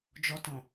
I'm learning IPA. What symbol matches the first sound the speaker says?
d͡ʒ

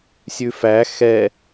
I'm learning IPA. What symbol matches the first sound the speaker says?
sʲ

